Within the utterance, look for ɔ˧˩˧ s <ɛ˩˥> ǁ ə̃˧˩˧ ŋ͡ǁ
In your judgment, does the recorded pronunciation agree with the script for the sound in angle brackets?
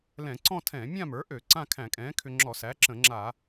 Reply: no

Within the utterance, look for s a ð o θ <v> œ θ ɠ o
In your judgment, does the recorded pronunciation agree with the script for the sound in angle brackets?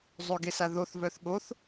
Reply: yes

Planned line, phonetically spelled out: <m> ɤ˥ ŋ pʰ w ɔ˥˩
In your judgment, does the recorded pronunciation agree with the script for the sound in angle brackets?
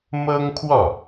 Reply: yes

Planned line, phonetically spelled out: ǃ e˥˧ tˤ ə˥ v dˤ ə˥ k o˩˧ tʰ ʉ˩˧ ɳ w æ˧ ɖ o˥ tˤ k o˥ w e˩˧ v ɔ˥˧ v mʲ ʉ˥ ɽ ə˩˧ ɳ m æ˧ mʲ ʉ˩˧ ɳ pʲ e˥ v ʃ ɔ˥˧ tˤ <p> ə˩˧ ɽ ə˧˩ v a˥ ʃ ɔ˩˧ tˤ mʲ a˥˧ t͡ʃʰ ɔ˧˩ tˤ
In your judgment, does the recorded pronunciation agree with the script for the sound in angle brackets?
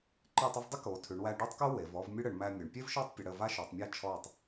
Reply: no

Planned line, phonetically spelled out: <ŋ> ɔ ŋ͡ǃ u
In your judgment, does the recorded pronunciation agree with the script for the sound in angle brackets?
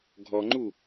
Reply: no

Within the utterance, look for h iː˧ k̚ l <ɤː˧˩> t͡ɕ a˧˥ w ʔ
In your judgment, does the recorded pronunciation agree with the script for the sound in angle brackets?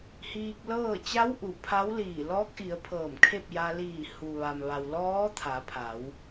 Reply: no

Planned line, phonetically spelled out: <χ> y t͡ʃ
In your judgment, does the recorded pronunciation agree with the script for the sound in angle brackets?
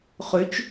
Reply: yes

